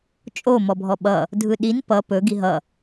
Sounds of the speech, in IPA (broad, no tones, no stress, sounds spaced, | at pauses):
t͡ʃʼ o m ɔ bʱ ɔ ɓ ʌ | dʱ ɯ ɗ i n p ʌ p ɵ ɡ i ɦ ʌ